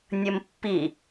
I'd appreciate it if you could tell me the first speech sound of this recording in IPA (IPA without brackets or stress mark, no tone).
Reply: nʲ